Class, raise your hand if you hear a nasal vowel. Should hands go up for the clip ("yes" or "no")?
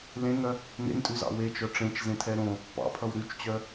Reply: yes